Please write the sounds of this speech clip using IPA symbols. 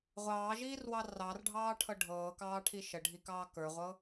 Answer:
ʁʷɑːʒiːrwɑ rɑrɖʱɑːʈʰɤ ɖʱɤːkɑːʈʰi ʃəɖʱikɑː kə˞ʁʷɤ

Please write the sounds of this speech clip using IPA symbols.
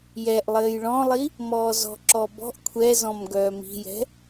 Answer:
jɛʔ lˠɘːjɭɔ̃lˠi | mɔːzɔ̤ǁɔ bɔ̤ʔ kʷʰɛzɔ̃m ɡœːmi̤jɛ̤

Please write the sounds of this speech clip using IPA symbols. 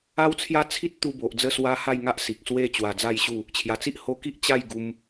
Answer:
a˦wt͡sʰja˦t͡sʰi˦t̚ t̪u˧bo˨ʔ d͡zə˥˧swa˦ ha˥˧jŋa˦ʔ si˨k̚swe˥˧ t͡ɕwa˧d͡za˥˧jɕu˥˧ | t͡ɕʰja˨˩t͡si˦ʔho˧ki˦ʔ t͡ɕa˥˧j ɡu˧m

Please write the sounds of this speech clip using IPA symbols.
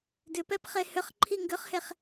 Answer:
dʏpɛp χehʏχǃʰi ŋɡʏχheχ

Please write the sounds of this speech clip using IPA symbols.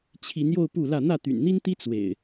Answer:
t͡ɕʰi˨˦njo˧ʊ̯ pu˥˨lä˥˨ n̪ä˥˨t̪y̰˨˩nn̪i˦nt̪i˦ t͡swḛ˨˩ɪ̯

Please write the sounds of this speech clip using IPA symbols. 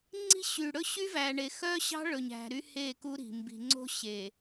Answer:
ŋ͡ǀi̤˦ɕy˨ ɽɵ˦ɕy˦væ˨ɳe˨ xœ˦ɕɑ̤˦ɭɵ˨ɲæ̤˨ ɾy˦he˦˨ ku˦ɾi̤˨ mbi̤˨ŋ͡ǀo̤˦ɕe˨

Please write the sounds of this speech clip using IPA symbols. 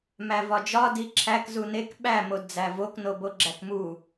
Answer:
mævɒd͡ʒɒ diǁʰæk zunek ɓæ modd͡zævok noboɡ͡ǁækmu

